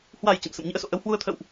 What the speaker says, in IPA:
h w a˨˩ j t͡ɕ ə̰˧˨ m s ə̰˧˨ m ɲ ɨ̰˧˥ ə̯ s o̰˧˨ ʔ ə˨˦ w h w u˧ ə̯ t̪ʰ ə̰˧˨ w ʔ

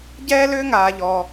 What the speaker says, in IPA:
ɟ ɛː˥ l ʏː˥ ŋ aː˩ ʎ ɔ˩

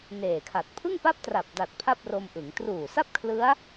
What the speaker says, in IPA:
n eː˨˩ kʰ a˨˩ t̚ pʰ ɯ˥˩ ŋ p a˥˩ p̚ t r a˨˩ p̚ d a˨˩ t̚ pʰ a˥˩ p̚ r o˧ m ʔ ɯ˩˦ ŋ t r uː˨˩ s a˥˩ p̚ kʰ l ɯ˦˥ a̯

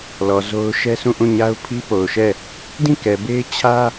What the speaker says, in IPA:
l ɔ˨ z o˦ ʊ̯ ʃ ɛ˦ sʰ ũ˦˨ ʔ ũ˦˨ ɲ a˦ ʊ̯ pʰ i˦ p o˨ ʊ̯ ʃ ɛ˦˨ | d ĩ˦˨ k ɛ˨ b e˦ ɪ̯ t͡ɕʰ ä˦

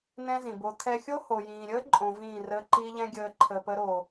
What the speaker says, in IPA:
n ɛ̃˦ z ĩ˨ b o˧ t̪ʰ ɛ˦ xʲ o˦ h o˨ j ĩː˨ ɾʲ əː˦ ǃʼ õ˧ v ĩː˦˨ r əː˦ ǃ i˦ ʎ ɛ̃˦ ɡʲ əː˧ ǃʰ ə˨ p ə˧ ɾ o˨

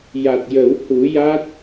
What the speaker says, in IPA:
j a˨˩ t̚ j ə˨˩˦ w h u˨˩˦ j a˦˥ t̚

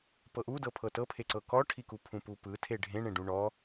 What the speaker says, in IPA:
p ɤ ʔ u d ɤ pʰ ɤ t ɤ pʰ e ǀ ɤ k ɔ ʈʰ i k u pʰ ũ p u p ɯ tʰ e ɖʱ ẽ ɳ ẽ ɖ ũ ɳ ɔ

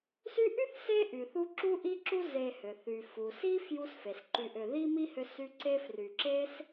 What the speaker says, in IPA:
s y˦ ʔ y˥ θ s e˥ ʔ y˩ θ u˦ ǁ u˦ ʔ i˦ ǁ u˦ z e˨ h ʏ˩ θ y˩ f u˩ s i˥ f j u˦ s f e˩ s ǃ y˨ ʔ ʏ˨ ð i˥ m i˥ h ʏ˦ s y˦ ǀ e˦ f r y˨ ǁ e˥ s

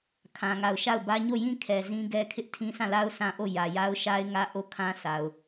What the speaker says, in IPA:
kʰ ã˦ ŋ a˦˨ ʊ̯ ʃ a˦˨ ʊ̯ b ä˦ ɲ o˦˨ j ĩ˦ kʰ ɛ˨ z ĩ˦ ɡ ɛ˦ kʰ ɪ˦ ʔ tʰ ĩ˦ sʰ ã˦˨ l a˦ ʊ̯ s ã˦ ʔ o˦˨ j ä˨ j a˦ ʊ̯ ʃ a˦ ɪ̯ ŋ ä˦ ʔ o˦˨ kʰ ã˦ s a˨ ʊ̯

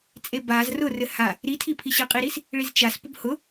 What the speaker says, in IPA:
t͡sʼ e b a z r ʊ r ɘ h a | ɾ i tʰ i pʰ i ɕ ɘ qʼ i ɾ i s | ɭ i z t͡ʃ a s p ʊ b h ʊ

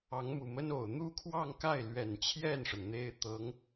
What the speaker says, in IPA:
ɑ˧˥ ŋ m u˨˩ m ə˥ n o˨˩ ʊ̯ n̪ u˥˧ kʰ w ɑ˥˧ ŋ k a˥˩ ɪ̯ l ɥ ɛ˨˩ n t͡ɕʰ j ɛ˥˩ n ʂ ə˩ n n̪ e˥ ɪ̯ t̪ ɤ˧˥ ŋ

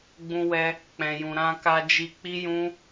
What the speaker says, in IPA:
ɡ͡b ũ˧ w ɛ˧ | k͡p ɛ̃˨ j ũ˨ ɾ ã˧ k a˧ d͡ʒ i˧ k͡p i˦ j ũ˦

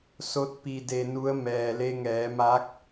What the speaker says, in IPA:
s o˧˥ t̚ p i˧ d e˧ n u˧˥ ə̯ m ɛː˩ l e˧ ŋ ɛː˩˧ m a˧˥ k̚

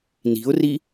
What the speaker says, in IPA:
n i̤ ʊ̯ r i

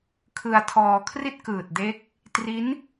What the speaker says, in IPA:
kʰ ɯ˧ a̯ tʰ ɔː˧ kʰ r i˥˩ t̚ k ɯː˨˩ t̚ d e˦˥ k̚ | t r i˦˥ n

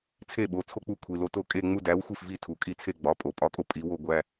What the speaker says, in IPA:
t͡sʰ e˥˩ ɓ o˩˧˩ t͡sʰ o˥˧ k͡p u˥˩ kʷʰ i˩˧˩ l o˥˩ t o˥˩ kʼ e˥˧ ŋ͡m u˥˧ d æ˨˥ w xʷ i˥˩ f v i˥˩ tʰ u˨˩˦ kʼ i˥˩ t͡sʰ e˥˧ ɡ͡b ɒ˩˧˩ pʼ o˨˩˦ pʼ ɒ˨˥ kʼ o˥˩ pʼ i˨˥ w o˥˧ ɡʷ æ˥˧

